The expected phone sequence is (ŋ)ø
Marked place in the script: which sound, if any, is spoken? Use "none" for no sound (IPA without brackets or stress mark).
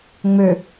ŋ͡m